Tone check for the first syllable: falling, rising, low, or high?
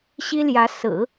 high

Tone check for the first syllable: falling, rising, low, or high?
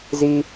high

